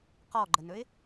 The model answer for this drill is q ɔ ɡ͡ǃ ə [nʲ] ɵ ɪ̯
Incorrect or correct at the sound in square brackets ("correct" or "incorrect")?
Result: incorrect